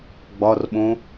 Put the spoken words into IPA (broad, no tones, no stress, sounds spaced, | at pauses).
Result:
ɡ͡b ɒ r ɓ õ